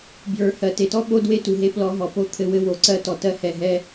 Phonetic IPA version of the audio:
bjə˞˨ hɜ˨te˨tɔ˦ ɓo˦dwe˦tu˨ ɦe˧plɔ˧ ɦɔ˨po˦t̪ʰɘ˦˨wɘ˦ wo˨ ǀɜ˦tɔ˧ tɜ˦hɛ˧ɦɛ˦

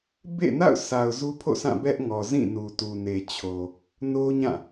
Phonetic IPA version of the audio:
bḛ˦˨na̰˦˨ʊ̯sa˨ʊ̯ zu˦pʰo̰˦˨sʰã˦˨ bɛ˦ʔ ŋɔ˨zĩ˦˨nu˨ tu˨ne˨t͡ɕʰo˨ | no˦ɲã˦˨

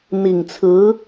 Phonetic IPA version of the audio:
n̪i˨˩ŋt͡sʰɹ̩˧˥

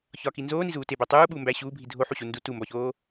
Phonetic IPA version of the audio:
çɒki nzoːnizuː tebæ tˤuːɓuːmbæː ɕuːbʱi dʱoħuɕu ndu tumbɒçoː

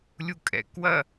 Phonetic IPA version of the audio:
lʲukʼɛ̰kwɐ

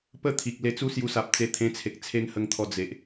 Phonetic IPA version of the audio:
pə˥˧t̪ʰi˨k̚ le˧t͡su˦sju˧sa˨p̚ t͡se˧t̪ʰẽ˧t͡sʰe˨k̚ t͡sʰe˦ŋ hə˧ŋt̪ʰɔ˧ d͡ze˨ʔ

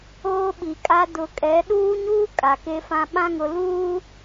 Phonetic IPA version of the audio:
oː˦ɓi˨kʼa˦ dʊ˨kʼɛ˨˦ ɗuː˦ɲuː˦ kʼa˨ke˦fã˦ ɓã˦ŋʊ˨ luː˦

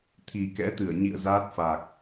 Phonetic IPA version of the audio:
t̪ʰi˨˩kɛ̰˧˥t̪ɨ˧˩ə̯ɲḭ˧˨ə̯ zaː˦˥t̚fa˨˩k̚

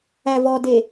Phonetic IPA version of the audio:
ævɔde

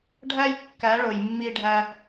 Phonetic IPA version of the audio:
ɖʱæ˦j kːæ˨˦ɭo˨jmːi˧ɖʱæ˧

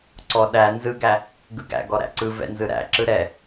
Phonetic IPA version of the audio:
ǀɔ ɗæ nzɯɡæ | ɡɯɡæ̰ɡɔ ɾæ̰ǀɯ vɛ̰nzɯɾæ̰ ǁɯɾɛ

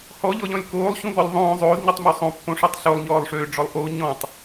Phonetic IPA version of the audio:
hɔʎɔʎɔ̃lʲ koːlˠɕũvɔlʲ ðˤõː zˤoːzɲutˤmu sˤõpːõʂøtˤ ɬolˠɲɔːlˠʂøːɖ͡ʐɔlˠ ʔo ɲɔ̃tˤ

